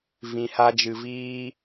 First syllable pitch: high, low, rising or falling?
low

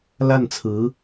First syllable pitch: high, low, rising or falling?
falling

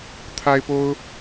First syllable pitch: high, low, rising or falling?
high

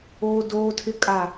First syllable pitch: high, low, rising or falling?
high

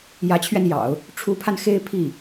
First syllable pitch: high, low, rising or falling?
rising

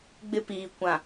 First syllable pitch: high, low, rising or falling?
high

